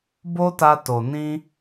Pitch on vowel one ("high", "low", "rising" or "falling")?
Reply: high